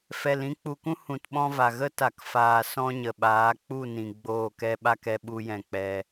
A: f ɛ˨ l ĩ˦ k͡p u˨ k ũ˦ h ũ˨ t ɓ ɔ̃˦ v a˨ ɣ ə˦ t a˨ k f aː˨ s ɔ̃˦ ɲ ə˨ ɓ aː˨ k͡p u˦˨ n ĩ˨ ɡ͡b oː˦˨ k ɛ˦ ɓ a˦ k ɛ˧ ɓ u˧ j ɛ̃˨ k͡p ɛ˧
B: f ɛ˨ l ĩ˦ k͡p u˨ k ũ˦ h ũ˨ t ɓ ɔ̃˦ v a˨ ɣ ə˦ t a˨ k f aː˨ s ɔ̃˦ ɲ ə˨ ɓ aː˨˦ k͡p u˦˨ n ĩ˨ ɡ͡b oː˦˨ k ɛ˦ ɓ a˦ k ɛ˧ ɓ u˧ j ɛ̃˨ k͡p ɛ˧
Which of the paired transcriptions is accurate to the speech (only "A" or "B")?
B